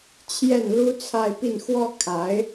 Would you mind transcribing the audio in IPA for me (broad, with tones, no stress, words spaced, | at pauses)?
t͡ɕʰjɛ˥˩nlu˥t͡sʰa˥˧ɪ̯pi˥˩n xwɔ˥ kʰa˧˥ɪ̯